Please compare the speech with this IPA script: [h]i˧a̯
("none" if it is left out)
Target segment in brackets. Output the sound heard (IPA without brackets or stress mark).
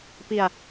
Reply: p